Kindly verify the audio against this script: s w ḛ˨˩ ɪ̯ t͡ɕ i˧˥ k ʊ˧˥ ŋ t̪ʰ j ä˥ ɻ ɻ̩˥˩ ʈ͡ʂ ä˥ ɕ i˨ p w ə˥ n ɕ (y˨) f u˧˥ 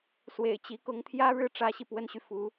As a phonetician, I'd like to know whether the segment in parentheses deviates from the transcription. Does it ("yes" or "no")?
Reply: no